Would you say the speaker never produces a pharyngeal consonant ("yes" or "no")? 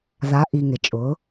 yes